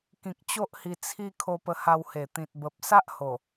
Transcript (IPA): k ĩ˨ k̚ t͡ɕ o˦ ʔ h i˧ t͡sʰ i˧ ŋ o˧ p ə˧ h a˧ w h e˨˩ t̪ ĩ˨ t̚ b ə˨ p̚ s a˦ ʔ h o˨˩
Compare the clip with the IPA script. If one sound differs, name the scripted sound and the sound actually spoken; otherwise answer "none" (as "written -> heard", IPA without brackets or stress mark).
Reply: ŋ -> kʰ